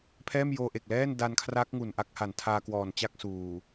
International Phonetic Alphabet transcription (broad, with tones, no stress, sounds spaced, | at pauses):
pʰ ɛː˥˩ m j oː˧ ʔ e˨˩ k̚ l ɛː˥˩ n d a˧ n kʰ r a˦˥ k̚ ŋ u˨˩ n ʔ a˥˩ k̚ h a˨˩ n tʰ aː˧ k w ɔː˨˩ n t͡ɕ a˥˩ k̚ s uː˨˩